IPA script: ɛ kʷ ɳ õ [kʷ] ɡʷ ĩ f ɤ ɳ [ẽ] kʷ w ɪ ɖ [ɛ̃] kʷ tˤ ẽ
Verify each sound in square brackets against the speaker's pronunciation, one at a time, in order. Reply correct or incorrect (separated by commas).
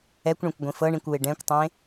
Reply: correct, incorrect, correct